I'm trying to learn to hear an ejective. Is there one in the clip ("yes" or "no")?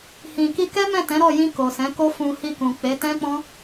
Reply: no